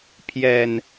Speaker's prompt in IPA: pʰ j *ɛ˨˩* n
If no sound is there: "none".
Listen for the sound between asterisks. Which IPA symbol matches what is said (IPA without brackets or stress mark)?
ɛ˨˩